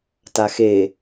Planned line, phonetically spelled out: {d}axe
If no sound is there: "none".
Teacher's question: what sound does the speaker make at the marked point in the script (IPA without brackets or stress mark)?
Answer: t